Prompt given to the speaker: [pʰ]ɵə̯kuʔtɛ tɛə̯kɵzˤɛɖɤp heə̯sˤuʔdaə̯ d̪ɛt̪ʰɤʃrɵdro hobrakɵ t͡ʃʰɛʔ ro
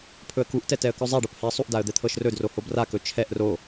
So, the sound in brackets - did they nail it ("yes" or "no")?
yes